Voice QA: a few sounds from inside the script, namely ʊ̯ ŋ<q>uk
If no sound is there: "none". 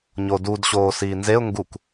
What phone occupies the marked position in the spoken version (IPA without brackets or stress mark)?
ɡ